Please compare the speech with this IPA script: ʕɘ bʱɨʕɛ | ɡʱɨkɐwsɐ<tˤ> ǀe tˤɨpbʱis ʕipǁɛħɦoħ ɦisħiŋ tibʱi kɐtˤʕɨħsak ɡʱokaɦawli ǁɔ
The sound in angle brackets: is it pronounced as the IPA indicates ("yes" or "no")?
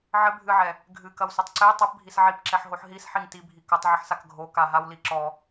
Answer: yes